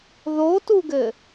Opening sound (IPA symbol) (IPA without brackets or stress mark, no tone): ð